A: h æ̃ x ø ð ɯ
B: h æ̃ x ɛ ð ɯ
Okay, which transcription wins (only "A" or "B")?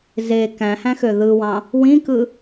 A